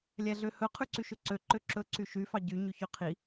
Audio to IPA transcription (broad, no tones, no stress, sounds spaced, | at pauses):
lʲ æ ɮ ø h ɵ qʰ ʉ ǀ y ʃ ɵ ǀ ø ǃ ø ǁ ɵ ǀ y ʃ y f ɑ ɟ y ɲ y ç ø qʰ i